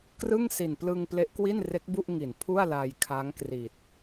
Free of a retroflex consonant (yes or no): yes